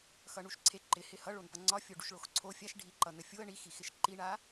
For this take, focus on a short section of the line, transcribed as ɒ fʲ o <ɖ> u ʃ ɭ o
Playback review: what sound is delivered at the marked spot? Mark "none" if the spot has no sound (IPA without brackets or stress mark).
ɖ